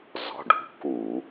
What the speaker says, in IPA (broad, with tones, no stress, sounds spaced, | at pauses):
z ɔ̤˩˧˩ ɖ ṳ˨˦ k u˧˩˧